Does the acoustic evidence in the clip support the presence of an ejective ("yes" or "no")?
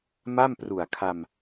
no